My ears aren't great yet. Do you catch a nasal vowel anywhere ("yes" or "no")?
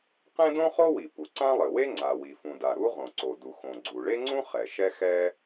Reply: yes